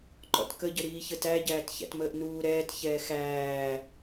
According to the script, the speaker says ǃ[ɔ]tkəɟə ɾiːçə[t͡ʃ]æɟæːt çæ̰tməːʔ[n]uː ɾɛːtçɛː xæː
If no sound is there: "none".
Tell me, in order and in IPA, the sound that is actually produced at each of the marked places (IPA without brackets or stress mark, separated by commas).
ɔ̰, t, n